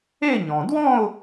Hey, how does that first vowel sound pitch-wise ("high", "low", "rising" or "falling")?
falling